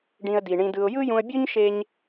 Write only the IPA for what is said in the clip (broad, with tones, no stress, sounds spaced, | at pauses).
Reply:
ɖ ĩ˧ ə̯ d i˨ ɳ ĩ˧ d ɯ˧ ʊ̯ j ɯ˦ j ũ˧ ə̯ bʲ u˦ ɲ ʃ e˦ ɲ